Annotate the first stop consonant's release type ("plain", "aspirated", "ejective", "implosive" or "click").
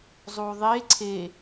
click